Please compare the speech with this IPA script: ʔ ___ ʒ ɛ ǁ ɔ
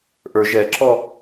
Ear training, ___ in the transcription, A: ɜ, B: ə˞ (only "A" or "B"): B